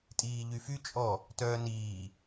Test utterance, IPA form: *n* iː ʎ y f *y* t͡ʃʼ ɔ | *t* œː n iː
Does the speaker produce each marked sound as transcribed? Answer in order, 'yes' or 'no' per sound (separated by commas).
no, yes, yes